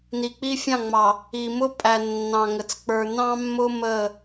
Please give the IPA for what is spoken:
n i˨ k͡p i˦ fʲ ɑ̃˦˨ ŋ͡m ɑ˨ | i˨ m ʊ˦ pʼ æ˨ nː ɑ̃˨ ŋ ə˨ t͡s k͡p ə˞˨ n ɑ̃˦ mː ʊ˦ m ə˦˨

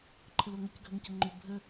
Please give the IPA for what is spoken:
ǃʰ ə l o ŋ ə c ɡʱ ə ŋ c ə ŋ͡ǃ ʏ bʱ ə

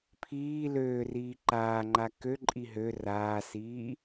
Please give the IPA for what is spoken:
pʰ iː l øː r iː ǃ aː ŋ͡ǃ a k ø ǃʼ i ɦ ø r aː s iː

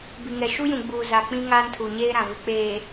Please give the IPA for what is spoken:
b i˨ ŋ ɛ˨ ʃ u˦ j ũ˨ ɡ͡b uː˨ z a˨ k͡p ĩ˦ ŋ aː˦ n tʰ u˨ ɲ eː˦ ɾ ã˨ v ɪ˨ k͡p eː˨

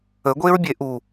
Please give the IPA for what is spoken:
ə ɡʷ e ɹ bʲ e ʔ u

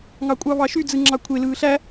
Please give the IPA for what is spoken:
ŋ ɑ kʷʼ ɑ β ɑ ʃ y d͡z ɯ ŋ͡ǁ ɑ kʷʰ e l ɯː ɬ æ

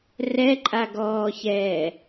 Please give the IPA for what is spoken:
r ɛ ǃʼ a ɡ ɔː ç ɛː

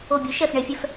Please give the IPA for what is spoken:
o˧˩ bʲ u˩˥ ʃ ɛ˧˩ f ɳ e˨˩˦ fʲ ɛ˧˩ f

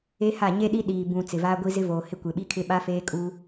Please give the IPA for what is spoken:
e˦ h a˦˨ ɲ e˦ ɗ i˦ ɗ iː˨ b ũ˨ t͡s ɪ˨ v aː˦ ɡʷ i˦ z ɪ˦ v oː˨ h ɪ˦ kʷ e˨ ɓ i˦ kʰ ɪ˦ ɓ a˦ f eː˦ kʼ uː˦

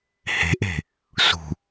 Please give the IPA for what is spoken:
h e̤ ʔ e̤ | s ṳ

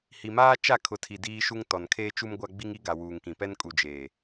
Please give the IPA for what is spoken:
h i˨ m aː˦ t͡ʃ a˦˨ kʰ ʊ˨ tʰ i˨ d iː˦ ʃ u˦ ŋ t ɔ˨ n kʰ eː˦ t͡ʃ u˦ m ɡʷ a˦ ɡ͡b i˦ ŋ i˦ ɡ a˨ w uː˨ ŋ k ĩ˨ p ɛ˦ n kʼ u˨ d͡ʒ eː˨

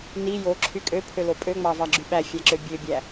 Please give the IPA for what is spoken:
n i j o ǁʰ y kʼ ø pʰ ø l o pʼ ø ŋ͡m ɑ v ɑ ɡ͡ǁ y ɓ æ fʲ æ ǁ ø bʲ ø bʲ æ

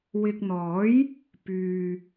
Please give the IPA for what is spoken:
w ɪ˨ k̚ n̪ ɔː˨˥ j | p yː˨

